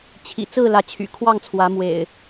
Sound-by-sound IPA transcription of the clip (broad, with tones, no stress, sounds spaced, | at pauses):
t͡ɕʰ ḭ˨˩ t͡s ɹ̩˥˨ l ä˨˦ t͡ɕʰ y̰˨˩ kʰ w ɑ˥˨ ŋ t͡sʰ w ä˨˦ m w ḛ˨˩ ɪ̯